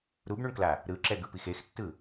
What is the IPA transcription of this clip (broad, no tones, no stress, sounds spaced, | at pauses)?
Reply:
ɾ u b ɳ u ɳ k l a | ɾ ɯ ǁ ɛ ɡ ɯ p i x e x tː ɯ